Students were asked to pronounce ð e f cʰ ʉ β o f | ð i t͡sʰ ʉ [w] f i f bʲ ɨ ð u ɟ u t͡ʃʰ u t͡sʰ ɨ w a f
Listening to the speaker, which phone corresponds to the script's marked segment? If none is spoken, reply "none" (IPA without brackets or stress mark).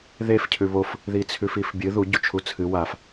none